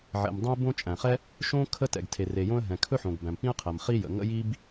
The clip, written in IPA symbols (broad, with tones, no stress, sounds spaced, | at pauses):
ʕ ɛ̰˩ m dˤ ə̃˥ ɪ̯ b õ˥ t͡ʃʼ æ̃˩ χ ɛ˥ | ʃ õ˥ kʰ ə˥ t ɛ̰˩ ɡ tʰ e˩ r e˩ j õ˥ ə̯ ɦ ɛ̃˩ kʰ ɵ˥ ħ õ˩ ɡ b æ̃˩ m p ĩ˥ ə̯ qʰ æ˩ m χ i˥ j ə̰˩ ŋ ə̰˥ j i˥ b